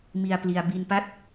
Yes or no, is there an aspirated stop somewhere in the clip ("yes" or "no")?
no